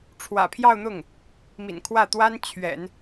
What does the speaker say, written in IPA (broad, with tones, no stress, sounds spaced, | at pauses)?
ʈ͡ʂʰ w ä̰˨˩ pʰ j ɑ˥˧ ʊ̯ n̪ ʊ˥˩ ŋ | m ḭ˨˩ n kʰ w ä˥˩ t̪ w a˥ n t͡ɕʰ ɥ ɛ̰˨˩˦ n